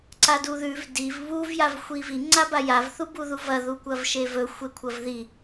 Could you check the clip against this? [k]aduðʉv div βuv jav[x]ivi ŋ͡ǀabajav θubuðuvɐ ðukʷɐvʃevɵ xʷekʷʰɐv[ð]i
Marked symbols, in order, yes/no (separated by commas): no, no, yes